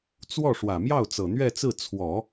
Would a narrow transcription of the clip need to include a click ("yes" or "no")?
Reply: no